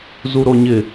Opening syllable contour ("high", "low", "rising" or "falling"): high